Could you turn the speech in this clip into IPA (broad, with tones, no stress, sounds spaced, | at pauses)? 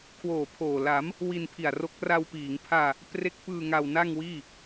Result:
kʰ w oː˨˩ pʰ oː˨˩ l a˩˦ m | w i˧ n pʰ i˨˩ a̯ r o˦˥ k̚ r a˧ w p iː˩˦ ŋ pʰ aː˧ | p r e˦˥ k̚ p ɯː˧ ŋ a˧ w n a˥˩ ŋ w iː˥˩